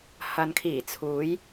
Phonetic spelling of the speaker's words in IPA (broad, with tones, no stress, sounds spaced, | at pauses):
h ɐ˨ n kʰ iː˨˩ t͡sʰ uː˨˧ j